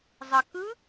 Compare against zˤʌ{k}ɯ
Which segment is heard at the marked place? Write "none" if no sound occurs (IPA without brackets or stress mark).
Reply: k